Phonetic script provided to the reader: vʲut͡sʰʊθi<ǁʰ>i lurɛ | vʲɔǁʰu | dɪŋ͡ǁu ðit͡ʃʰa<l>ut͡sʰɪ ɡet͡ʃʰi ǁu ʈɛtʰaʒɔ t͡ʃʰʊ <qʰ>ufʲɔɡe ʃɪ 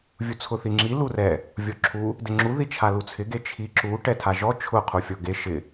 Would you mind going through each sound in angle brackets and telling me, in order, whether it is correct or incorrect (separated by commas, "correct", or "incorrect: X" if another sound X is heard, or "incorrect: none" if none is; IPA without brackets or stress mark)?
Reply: incorrect: ŋ͡ǁ, correct, correct